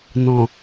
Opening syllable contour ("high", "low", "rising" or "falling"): low